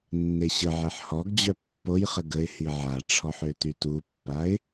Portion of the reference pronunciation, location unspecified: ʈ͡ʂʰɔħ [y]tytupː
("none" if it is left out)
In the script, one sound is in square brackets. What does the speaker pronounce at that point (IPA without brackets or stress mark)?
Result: ø